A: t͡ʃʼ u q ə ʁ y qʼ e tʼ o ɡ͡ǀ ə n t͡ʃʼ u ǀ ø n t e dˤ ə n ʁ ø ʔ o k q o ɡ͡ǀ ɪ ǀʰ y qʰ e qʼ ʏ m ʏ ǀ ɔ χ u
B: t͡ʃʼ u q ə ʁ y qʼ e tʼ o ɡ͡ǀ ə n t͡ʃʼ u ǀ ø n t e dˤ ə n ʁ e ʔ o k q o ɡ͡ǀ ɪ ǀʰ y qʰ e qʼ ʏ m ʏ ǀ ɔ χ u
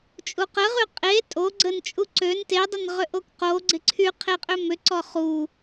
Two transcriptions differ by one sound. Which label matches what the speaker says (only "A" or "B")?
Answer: A